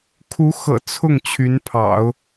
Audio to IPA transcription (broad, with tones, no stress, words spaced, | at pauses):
kʰu˧˥xɤ̰˨˩ t͡sʰʊ˥˩ŋ t͡ɕʰy˧˥npʰɑ̰˨˩˦ʊ̯